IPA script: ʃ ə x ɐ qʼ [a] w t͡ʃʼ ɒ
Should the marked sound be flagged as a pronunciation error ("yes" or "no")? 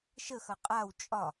no